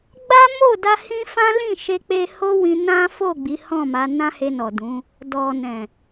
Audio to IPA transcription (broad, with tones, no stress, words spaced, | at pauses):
ɡ͡ba˦mo˦˨da˧ hĩ˦fã˦lĩ˦˨ ʃe˧k͡pe˧ ho˦wĩ˧ nã˦fo˦˨ ɡ͡bi˨˦hɔ̃˦˨ma˨˦ nã˦he˧nɔ˨ dũ˨˦ | dɔ˨nɛ̃˨